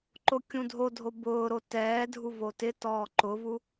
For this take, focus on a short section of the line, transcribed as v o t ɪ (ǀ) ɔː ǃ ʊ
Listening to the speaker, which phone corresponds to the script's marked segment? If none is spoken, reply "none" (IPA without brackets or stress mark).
t